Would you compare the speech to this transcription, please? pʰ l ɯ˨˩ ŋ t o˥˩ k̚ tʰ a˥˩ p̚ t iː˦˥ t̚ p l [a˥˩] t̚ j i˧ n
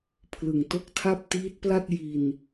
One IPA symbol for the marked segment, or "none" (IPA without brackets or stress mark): a˥˩